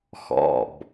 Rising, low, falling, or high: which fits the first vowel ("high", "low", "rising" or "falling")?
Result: low